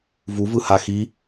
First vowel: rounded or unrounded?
rounded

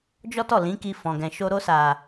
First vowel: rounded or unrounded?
rounded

